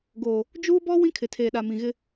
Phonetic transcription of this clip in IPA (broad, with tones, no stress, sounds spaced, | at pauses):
ɡ oː˨ | d͡ʒ uː˦ b ɔ˦ w ĩ˦ kʰ ɪ˨ tʰ eː˨ ɗ a˨ m ĩ˨ ɣ ɪ˦